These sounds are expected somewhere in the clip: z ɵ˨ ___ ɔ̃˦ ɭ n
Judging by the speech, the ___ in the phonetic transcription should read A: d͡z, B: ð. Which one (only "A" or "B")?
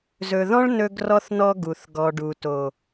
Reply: B